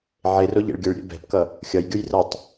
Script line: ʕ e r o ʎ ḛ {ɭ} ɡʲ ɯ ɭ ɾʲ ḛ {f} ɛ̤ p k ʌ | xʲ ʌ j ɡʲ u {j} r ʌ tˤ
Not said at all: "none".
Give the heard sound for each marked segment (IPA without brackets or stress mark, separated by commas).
ɭ, b, j